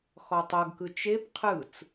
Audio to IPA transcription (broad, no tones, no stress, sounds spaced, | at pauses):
x ɔ tˤ ɤ ɡ k ɯ t͡ʃ e p qʰ ɯ t͡s